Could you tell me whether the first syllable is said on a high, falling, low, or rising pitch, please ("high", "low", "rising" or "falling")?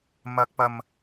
high